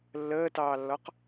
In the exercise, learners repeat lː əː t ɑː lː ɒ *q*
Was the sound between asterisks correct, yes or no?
yes